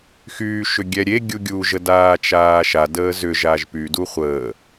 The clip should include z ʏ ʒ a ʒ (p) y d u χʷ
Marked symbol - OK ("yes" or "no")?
yes